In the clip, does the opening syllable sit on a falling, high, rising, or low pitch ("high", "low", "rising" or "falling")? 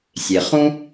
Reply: low